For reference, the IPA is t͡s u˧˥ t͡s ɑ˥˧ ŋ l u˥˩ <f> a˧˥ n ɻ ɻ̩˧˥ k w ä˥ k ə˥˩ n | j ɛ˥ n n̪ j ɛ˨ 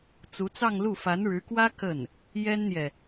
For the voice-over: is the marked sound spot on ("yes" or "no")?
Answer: yes